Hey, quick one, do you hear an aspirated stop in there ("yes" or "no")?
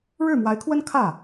yes